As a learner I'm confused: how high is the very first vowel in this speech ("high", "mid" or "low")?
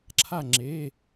low